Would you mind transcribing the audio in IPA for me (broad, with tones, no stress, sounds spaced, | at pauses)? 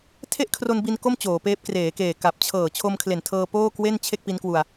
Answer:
tʰ e˥˩ ʔ kʰ r o˧ n b i˧ n k o˥˩ m t͡ɕ oː˩˦ p eː˦˥ p̚ k r eː˩˦ k eː˨˩ k a˨˩ p̚ t͡ɕʰ ɤː˨˩ t͡ɕʰ o˧ m kʰ l e˨˩ n tʰ ɤː˧ p oː˥˩ k w e˥˩ n t͡ɕʰ e˥˩ k̚ p i˦˥ n k w u˧ a̯